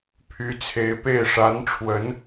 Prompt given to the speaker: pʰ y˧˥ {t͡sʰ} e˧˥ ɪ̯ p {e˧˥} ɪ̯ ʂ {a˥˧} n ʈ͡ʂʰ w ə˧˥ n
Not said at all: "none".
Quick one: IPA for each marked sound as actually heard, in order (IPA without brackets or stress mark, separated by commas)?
t͡sʰ, e˥˩, a˧˥